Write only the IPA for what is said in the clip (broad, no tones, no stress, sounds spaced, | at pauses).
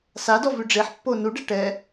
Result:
s a d ɔ v ʉ ɖ͡ʐ e ħ pː o n u ɖ ɛ ʈ ɛ